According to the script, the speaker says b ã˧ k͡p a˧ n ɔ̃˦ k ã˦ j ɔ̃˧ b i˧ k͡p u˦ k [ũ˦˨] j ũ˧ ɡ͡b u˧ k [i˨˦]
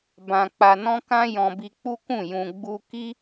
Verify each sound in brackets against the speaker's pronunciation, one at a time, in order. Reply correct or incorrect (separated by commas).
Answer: correct, incorrect